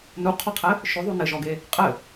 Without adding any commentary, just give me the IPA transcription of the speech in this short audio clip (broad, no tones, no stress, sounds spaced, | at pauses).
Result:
n u qʰ ɔ qʰ ɘ | ʃ ɵ ðˤ u n ɘ ʒ ɔ ɡ e | qʼ ɘ